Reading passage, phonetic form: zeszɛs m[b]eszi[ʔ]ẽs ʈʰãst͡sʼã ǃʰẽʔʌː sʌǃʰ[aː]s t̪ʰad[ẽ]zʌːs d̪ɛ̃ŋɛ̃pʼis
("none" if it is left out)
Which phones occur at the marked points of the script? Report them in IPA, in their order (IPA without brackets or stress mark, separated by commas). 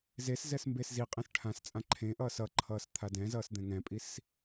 b, qʼ, ʌː, ɛ̃